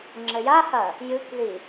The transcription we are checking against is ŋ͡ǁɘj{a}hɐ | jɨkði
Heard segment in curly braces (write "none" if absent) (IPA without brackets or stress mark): a